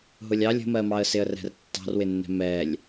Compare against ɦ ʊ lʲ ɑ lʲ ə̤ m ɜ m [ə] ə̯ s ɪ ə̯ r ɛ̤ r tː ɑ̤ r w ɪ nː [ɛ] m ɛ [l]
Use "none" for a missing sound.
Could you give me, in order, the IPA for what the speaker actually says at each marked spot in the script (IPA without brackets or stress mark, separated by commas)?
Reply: ɑ, ɛ̤, lʲ